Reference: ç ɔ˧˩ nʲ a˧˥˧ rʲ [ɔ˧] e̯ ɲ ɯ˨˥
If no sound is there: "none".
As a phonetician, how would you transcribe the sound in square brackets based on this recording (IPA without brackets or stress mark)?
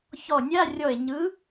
ɔ˧˩